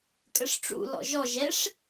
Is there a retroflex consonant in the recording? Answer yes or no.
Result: yes